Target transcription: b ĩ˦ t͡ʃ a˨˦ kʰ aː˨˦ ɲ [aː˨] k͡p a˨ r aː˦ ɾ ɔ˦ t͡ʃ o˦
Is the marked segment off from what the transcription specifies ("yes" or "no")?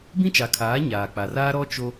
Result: no